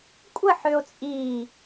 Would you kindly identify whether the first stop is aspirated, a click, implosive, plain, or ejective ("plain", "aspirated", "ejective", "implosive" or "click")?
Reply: ejective